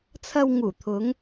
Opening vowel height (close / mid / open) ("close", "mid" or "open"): open